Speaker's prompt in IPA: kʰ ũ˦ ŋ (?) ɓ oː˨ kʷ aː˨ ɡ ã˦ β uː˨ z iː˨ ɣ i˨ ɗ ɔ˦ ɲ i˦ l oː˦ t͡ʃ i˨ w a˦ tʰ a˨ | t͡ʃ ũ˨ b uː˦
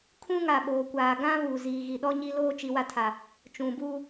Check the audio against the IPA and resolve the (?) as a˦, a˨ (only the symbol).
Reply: a˨